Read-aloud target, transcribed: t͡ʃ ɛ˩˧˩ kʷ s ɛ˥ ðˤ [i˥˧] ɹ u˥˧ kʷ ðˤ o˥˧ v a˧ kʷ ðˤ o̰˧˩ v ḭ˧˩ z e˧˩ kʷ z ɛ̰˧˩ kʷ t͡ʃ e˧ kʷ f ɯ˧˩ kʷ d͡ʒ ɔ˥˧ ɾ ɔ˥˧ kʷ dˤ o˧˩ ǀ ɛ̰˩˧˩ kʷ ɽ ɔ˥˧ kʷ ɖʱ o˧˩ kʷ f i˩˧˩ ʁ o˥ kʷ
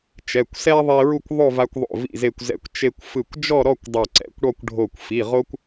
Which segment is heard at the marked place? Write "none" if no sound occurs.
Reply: i˧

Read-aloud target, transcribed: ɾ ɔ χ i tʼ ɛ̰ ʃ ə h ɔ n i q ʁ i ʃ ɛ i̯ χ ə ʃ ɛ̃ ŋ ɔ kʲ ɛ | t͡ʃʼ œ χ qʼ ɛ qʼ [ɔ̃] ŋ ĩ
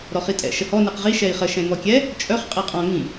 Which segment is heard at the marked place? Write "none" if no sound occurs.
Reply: ɔ̃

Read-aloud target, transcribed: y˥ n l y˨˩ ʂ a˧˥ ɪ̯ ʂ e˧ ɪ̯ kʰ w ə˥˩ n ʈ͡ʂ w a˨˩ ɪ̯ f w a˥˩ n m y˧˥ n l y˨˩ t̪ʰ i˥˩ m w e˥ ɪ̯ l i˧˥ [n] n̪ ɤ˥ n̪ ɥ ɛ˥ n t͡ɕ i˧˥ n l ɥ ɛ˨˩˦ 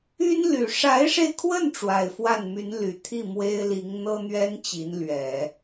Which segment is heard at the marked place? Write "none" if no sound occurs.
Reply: ŋ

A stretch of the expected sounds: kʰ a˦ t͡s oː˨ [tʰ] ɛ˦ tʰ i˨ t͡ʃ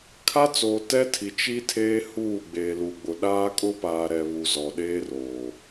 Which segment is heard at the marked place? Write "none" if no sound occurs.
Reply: t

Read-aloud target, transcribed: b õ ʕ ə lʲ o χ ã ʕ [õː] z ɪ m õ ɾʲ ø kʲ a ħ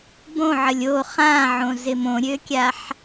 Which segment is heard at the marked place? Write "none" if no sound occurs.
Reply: õ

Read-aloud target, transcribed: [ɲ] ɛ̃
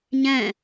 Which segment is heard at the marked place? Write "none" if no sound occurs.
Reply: ɲ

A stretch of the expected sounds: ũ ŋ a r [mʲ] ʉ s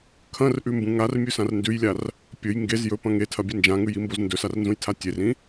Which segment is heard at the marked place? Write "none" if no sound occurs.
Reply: mʲ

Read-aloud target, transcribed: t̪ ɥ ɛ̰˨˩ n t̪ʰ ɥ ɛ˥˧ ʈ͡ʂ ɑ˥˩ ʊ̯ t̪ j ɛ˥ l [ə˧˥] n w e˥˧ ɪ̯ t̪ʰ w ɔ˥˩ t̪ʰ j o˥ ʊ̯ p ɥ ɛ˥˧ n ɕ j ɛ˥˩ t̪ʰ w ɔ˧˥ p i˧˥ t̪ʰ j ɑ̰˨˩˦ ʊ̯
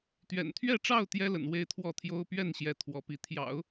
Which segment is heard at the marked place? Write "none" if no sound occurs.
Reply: ə̰˨˩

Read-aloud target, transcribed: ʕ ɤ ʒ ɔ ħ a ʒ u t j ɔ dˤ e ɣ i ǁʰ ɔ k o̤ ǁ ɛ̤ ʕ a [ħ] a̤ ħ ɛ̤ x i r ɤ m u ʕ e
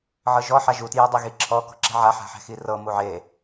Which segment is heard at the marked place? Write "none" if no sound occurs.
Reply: ħ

